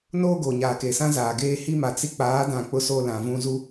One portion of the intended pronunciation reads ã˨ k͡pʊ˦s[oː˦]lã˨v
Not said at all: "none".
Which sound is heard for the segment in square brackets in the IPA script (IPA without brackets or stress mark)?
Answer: oː˦